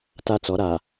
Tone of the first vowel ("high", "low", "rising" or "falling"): high